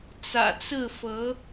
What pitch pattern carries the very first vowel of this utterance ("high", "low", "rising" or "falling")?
low